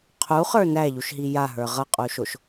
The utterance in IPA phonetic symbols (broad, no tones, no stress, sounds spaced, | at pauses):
qʰ u χ ə˞ n æ ʎ u ʃ ɦ i j a ɦ ə˞ ʁ ʌ qʼ u ʃ o ʃ